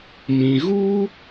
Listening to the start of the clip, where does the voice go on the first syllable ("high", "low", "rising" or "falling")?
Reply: low